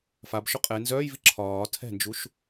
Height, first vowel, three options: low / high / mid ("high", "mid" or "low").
low